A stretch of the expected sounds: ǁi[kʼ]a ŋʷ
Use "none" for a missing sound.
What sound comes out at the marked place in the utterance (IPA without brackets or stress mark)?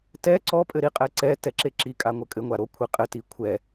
kʼ